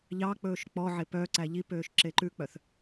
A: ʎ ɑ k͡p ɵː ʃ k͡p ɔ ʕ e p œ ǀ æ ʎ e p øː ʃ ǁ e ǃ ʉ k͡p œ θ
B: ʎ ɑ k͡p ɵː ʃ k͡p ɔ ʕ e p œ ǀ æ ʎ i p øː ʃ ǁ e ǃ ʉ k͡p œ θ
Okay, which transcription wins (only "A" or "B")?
B